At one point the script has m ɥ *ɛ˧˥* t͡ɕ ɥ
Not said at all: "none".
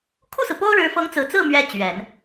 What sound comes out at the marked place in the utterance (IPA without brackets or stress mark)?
ɛ˥